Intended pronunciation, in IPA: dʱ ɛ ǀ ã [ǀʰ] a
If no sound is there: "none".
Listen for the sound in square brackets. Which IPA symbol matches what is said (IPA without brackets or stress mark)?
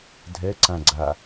ɡ͡ǀ